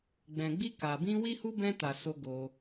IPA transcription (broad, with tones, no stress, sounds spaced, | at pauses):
ɡ͡b ɛ̃˨ ɡ͡b i˧ k a˨ b ĩ˧ w i˦ h u˦ b ɛ̃˧ t a˨ s o˧ ɡ o˧